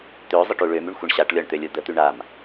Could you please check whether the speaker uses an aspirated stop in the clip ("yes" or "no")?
no